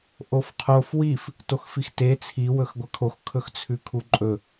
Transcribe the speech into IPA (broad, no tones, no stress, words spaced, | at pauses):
ʔofqʰof wif | toxfixte t͡sʰi wɵxɡʷɐkʰox kʰɵxt͡sʰʉkʰuǃʼɵ